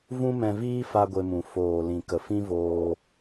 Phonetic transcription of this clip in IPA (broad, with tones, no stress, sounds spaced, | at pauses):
v ũ˦ m ɛ̃˧ v iː˦ f a˦ ɡʷ e˧ m ũ˨ f oː˨ l ĩ˨ k ə˨ f ĩ˦ v oː˧